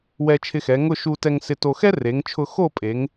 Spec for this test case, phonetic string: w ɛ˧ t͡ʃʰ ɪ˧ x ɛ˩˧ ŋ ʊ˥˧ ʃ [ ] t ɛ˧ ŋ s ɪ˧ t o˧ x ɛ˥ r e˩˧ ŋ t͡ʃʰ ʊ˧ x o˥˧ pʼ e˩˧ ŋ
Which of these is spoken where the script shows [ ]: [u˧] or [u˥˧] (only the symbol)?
u˧